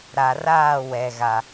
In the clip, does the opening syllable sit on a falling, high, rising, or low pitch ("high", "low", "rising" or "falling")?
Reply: low